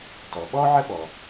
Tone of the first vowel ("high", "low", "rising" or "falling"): low